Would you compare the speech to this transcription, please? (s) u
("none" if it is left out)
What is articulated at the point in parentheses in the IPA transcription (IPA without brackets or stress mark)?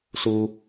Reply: s